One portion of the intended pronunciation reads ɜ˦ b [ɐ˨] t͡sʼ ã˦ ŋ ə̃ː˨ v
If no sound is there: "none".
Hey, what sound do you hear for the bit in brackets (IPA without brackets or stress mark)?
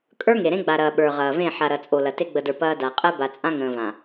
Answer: a˨